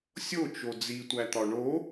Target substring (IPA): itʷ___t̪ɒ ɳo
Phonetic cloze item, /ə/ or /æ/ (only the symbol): æ